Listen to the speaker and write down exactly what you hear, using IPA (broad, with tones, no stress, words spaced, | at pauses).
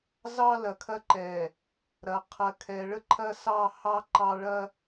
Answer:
zɑ˦ lɐ˨kʰɐ˦ǃɛ˨ | ɾɐ˨ qʰɐ˨kʰɛ˨ɭə˦ǃʰɐ˦ sɑ˦hɑ˦ ǃɑ˦ɭɐ˦